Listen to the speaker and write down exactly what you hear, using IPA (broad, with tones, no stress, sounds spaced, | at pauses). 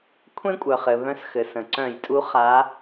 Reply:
kʷʰ ẽ˦ kʷʼ œ˩ χ ɘ˩ β œ̃˨˦ s x ɘ˩ s ə̃˩ ǀ œ̃˧˩˧ j tʼ u˨˦ χ a˨˦